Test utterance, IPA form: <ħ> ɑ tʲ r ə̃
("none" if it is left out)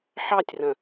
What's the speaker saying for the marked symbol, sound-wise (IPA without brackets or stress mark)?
ħ